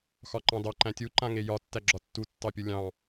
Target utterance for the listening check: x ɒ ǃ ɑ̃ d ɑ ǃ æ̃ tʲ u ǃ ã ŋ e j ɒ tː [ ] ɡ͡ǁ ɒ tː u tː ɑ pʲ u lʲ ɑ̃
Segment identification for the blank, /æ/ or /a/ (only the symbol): æ